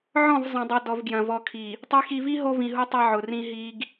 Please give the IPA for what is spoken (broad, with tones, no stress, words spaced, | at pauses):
ʕɔ̃˦˨v zˤɐ̃˨dˤo˨dɔ˨vɡjɐ̃˨ vɔ˨kʰi˨ | tˤi˨xi˨vi˦ ɦo˦vĩ˨ɦu˦ tˤɐ˦ʕʊ˨ rĩ˦ɦi˦ɡ